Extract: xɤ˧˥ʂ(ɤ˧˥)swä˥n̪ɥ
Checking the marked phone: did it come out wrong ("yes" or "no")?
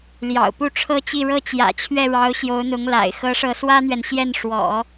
no